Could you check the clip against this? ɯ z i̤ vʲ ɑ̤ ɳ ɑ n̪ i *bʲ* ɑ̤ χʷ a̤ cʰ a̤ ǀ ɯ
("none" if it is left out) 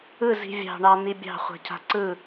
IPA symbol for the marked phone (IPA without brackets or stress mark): bʲ